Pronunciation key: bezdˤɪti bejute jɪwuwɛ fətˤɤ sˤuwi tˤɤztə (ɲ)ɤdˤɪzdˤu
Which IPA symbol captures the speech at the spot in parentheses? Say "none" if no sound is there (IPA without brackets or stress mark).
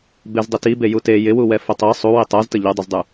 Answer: ʎ